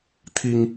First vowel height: high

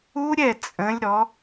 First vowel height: high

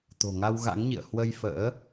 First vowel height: mid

